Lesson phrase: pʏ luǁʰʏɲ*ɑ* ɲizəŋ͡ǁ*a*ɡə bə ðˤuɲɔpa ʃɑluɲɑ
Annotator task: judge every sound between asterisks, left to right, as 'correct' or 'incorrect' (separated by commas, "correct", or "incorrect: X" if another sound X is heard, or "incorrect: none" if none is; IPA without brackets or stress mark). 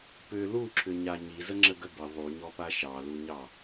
incorrect: a, incorrect: ə